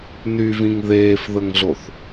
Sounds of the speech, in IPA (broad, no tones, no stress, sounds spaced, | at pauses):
n y v ĩ ŋ ð eː f ð ə ŋ ɮ o θ